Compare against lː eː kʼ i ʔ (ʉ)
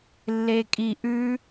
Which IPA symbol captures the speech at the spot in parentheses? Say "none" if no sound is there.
ʉ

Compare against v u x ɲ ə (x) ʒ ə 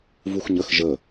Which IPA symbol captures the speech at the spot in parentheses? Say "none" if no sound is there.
x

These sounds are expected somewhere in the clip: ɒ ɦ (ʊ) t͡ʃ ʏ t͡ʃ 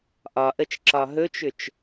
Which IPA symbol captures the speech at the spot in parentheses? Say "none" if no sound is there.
ɵ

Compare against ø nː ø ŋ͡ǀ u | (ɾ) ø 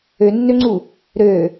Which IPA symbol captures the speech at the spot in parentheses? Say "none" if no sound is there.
ɾ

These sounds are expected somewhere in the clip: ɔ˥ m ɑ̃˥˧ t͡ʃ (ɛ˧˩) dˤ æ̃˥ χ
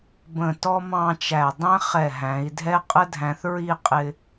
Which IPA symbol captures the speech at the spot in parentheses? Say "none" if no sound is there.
æ˧˩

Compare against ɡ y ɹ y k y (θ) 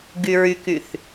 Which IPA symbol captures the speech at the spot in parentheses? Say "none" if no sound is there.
θ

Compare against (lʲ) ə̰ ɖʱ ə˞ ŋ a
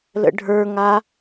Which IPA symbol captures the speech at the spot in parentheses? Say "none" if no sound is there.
l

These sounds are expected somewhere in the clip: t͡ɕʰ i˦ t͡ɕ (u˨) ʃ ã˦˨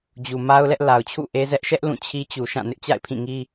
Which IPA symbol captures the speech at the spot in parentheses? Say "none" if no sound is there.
u˨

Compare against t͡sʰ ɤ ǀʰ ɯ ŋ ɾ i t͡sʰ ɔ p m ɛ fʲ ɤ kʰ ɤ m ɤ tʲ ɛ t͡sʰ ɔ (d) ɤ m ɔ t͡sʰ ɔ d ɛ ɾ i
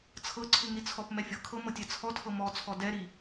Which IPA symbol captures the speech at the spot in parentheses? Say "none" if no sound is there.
tʰ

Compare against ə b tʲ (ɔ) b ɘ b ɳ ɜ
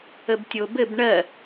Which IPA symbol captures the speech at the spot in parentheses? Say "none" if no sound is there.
o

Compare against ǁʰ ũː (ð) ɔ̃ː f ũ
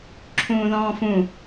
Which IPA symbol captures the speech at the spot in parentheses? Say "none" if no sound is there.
ð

